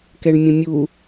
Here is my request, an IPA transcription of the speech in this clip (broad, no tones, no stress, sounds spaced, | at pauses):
k ɛ ɳ mʲ ə̃ mʲ u